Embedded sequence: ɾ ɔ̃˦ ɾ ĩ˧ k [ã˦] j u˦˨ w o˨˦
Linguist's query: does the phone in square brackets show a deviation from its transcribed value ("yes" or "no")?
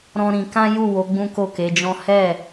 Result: no